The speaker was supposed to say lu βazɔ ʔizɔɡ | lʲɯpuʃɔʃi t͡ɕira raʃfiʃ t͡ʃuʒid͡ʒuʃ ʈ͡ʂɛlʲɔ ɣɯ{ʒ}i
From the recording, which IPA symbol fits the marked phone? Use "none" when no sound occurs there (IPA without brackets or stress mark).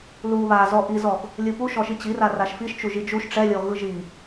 ʒ